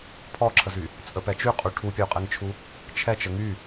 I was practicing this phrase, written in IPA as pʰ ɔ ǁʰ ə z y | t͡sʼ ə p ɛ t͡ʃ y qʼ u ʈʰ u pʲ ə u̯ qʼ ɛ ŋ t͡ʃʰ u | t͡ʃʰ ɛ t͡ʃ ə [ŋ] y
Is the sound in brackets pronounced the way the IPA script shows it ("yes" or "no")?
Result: yes